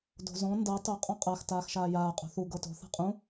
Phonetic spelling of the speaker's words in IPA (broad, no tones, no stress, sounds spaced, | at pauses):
d o̤ z ɔ̃ n d ɤ tˤ o qʼ ɔ̃ qʼ a x t aː x ʃ aː j aː qʼ o̤ θ u ɡ ɤ t o̤ θ a̤ qʼ ũ